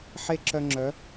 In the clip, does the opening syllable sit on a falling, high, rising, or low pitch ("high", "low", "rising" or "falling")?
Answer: high